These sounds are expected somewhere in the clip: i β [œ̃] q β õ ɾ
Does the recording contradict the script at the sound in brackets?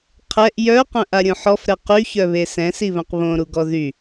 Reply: no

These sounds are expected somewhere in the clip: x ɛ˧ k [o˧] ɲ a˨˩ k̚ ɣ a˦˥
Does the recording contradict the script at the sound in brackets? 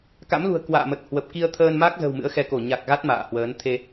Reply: yes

